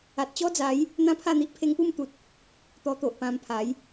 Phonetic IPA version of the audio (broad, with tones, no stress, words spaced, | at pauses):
a˨t̚t͡ɕɔ˦d͡za˨˦j | n̪ã˦pʰa˥˧n̪i˦ʔ pʰe˧ŋpu˥˧mt̪u˨t̚ | t̪ɔ˧t̪o˨ʔpã˧mpʰa˨˦j